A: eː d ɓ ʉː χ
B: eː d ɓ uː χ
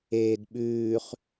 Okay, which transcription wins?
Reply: A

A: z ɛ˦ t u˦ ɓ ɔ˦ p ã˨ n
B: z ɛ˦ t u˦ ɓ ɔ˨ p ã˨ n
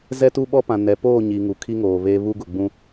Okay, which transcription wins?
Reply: A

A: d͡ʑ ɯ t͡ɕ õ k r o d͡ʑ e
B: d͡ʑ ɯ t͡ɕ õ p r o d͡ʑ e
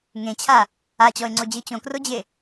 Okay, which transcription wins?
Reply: A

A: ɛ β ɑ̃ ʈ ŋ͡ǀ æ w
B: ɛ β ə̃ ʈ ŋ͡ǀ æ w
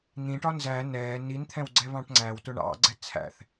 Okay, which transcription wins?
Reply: A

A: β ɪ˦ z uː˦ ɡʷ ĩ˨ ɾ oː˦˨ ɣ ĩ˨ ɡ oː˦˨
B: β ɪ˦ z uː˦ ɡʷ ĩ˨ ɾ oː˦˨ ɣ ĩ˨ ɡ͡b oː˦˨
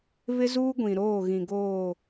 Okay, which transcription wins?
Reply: A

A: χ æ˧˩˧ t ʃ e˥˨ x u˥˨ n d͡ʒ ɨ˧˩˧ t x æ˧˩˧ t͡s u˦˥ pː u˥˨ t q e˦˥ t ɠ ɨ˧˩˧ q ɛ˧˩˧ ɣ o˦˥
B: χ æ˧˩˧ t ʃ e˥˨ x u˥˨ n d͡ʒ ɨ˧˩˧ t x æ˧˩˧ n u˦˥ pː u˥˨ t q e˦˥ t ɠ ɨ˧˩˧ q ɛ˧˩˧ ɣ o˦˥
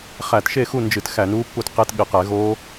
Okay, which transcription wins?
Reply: B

